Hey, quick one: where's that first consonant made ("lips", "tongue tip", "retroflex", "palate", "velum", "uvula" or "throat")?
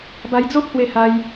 lips